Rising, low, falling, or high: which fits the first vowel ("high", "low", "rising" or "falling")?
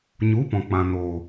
rising